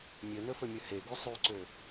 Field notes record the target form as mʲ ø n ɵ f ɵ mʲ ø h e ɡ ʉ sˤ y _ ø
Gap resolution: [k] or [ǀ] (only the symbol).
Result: ǀ